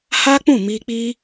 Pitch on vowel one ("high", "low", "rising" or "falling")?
high